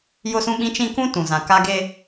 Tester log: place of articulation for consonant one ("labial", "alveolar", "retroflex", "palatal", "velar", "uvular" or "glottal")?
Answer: palatal